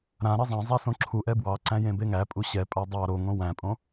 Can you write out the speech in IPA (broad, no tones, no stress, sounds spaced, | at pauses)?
ɾ ã ɾ e zˤ æ̃ zˤ æ s õ ǁʰ u ʔ ɛ b w ɑ ǀ æ̃ j ẽ b e ŋ æ pʼ u ɕ ɛ pʼ a dˤ ɑ ɾ o ŋ õ w æ̃ pʼ õ